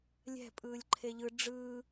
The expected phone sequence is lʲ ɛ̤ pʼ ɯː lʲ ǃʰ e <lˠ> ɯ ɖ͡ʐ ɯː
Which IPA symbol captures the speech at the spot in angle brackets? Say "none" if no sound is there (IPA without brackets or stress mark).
ʎ